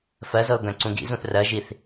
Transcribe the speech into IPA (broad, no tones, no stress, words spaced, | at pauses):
fɜzɤʊ̯ ɡœ̃ǀũɡḭzũθ rɜʒiθ